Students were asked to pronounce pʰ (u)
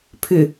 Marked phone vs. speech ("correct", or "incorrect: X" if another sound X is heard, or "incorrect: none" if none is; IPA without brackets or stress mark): incorrect: ʏ